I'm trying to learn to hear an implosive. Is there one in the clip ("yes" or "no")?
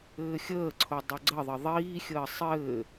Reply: no